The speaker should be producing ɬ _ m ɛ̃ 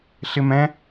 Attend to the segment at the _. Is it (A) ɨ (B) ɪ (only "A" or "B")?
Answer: B